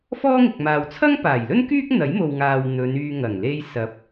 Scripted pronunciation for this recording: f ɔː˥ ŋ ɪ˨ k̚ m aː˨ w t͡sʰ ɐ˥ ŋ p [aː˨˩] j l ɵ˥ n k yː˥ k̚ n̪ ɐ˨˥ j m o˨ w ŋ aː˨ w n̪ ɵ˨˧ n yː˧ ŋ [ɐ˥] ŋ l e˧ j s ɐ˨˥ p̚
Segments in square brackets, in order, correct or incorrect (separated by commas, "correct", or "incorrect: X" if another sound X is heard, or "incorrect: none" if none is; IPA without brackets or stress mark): correct, incorrect: ɐ˨˩